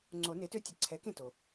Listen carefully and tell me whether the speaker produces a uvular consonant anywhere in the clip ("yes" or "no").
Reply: no